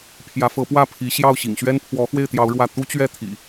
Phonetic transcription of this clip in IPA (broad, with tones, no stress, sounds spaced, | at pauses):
pʰ j ä˨˦ f ɤ˨˦ p w ä˥˨ pʰ i˨˦ ɕ j ɑ˥˨ ʊ̯ ɕ ḭ˨˩ ŋ ɕ ɥ ɛ˦ n pʰ w ɔ˨˦ x w e˥˨ ɪ̯ t̪ j ɑ˨˦ ʊ̯ ɻ w ä˥˨ t̪ u˦ t͡ɕ ɥ ɛ˥˨ t̪ʰ ḭ˨˩